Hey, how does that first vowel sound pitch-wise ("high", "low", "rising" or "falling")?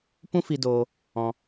high